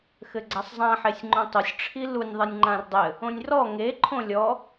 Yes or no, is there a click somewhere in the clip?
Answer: yes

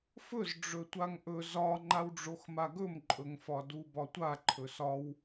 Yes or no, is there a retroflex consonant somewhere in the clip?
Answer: yes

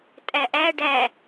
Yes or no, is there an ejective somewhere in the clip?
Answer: yes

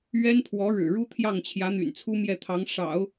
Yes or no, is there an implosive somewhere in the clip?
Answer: no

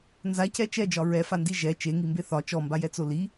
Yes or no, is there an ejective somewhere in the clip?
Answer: no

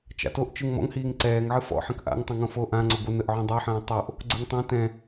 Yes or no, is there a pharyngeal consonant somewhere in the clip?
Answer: yes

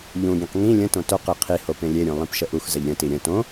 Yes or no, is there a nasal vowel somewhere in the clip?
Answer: yes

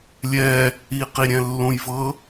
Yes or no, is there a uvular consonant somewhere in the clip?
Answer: yes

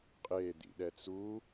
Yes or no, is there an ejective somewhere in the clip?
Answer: yes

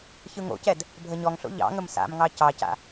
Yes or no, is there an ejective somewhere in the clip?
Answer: no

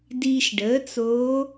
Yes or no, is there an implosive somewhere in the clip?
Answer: no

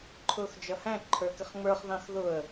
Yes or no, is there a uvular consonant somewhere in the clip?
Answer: yes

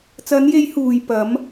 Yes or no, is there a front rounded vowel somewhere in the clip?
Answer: no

